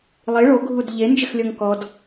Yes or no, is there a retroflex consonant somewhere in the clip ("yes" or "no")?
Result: yes